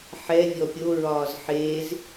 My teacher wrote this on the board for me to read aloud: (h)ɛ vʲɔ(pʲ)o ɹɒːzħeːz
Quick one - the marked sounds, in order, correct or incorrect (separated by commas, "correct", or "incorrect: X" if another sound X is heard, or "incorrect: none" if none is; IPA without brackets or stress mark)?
incorrect: ħ, correct